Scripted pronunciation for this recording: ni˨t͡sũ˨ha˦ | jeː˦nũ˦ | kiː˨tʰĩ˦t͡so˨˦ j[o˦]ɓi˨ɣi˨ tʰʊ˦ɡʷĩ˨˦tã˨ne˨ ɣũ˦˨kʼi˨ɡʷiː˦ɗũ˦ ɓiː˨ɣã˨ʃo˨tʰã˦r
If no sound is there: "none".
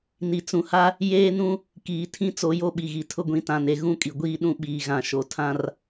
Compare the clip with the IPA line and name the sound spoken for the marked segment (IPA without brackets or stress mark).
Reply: o˦